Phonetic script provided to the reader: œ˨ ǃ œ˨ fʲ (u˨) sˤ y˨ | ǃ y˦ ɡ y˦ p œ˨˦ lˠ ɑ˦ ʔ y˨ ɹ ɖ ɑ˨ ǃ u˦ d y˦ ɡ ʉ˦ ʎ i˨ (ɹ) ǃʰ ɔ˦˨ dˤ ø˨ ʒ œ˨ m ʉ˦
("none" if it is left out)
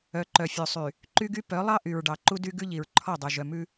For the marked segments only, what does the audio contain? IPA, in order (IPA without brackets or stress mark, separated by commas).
ø˨, ɹ